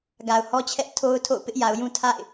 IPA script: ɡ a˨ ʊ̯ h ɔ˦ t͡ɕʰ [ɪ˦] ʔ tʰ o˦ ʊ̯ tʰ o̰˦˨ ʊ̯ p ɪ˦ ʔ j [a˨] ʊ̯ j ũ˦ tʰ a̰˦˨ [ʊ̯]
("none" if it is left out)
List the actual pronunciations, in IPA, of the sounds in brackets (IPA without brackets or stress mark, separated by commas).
ɛ˦, a˨, ɪ̯